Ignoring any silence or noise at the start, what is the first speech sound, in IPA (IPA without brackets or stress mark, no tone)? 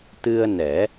t̪